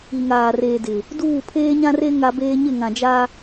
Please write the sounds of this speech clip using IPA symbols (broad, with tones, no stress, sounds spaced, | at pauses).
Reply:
i˨ ŋ aː˨ r eː˨ d ɪ˨ | d uː˦˨ pʰ eː˦ ɲ ã˦ r e˦ ŋ a˦ b eː˦ ɲ ɪ˦˨ ŋ ã˨ d͡ʒ a˦